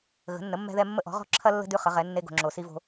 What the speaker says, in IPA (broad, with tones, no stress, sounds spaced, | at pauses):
ɣ ə̤˩˥ nː ə˩˥ mː ɛ̤˦ ð ɛ˦ mː ə˦ ʔ ɔ̤˩˥ ʁ ɔ̤˦ ǁʰ ɐ˦ lː ə̤˦ d ʉ˦ χ ə˩˥ ʁ ɛ˩˥ nː e˦ ɡ o̤˨ ŋ͡ǁ o˨ s i˦ v o̤˦